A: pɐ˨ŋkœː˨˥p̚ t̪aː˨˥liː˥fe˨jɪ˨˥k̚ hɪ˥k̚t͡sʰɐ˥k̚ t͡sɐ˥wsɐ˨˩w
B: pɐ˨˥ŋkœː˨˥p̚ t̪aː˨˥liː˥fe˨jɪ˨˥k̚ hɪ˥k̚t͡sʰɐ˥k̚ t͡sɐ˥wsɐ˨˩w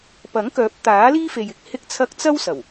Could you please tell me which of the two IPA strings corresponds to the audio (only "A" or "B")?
B